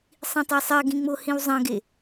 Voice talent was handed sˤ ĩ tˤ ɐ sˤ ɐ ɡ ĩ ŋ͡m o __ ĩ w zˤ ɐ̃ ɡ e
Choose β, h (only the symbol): h